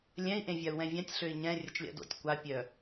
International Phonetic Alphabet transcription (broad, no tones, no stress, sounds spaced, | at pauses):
lʲ ɛ̃ i̯ ʔ ẽ vʲ a u̯ w ɛ̃ vʲ ã tʲ ɬ ø i̯ ɲ ɛ̃ rʲ ə t͡ʃ lʲ a̰ d o̰ tʲ kʷ a pʲ œ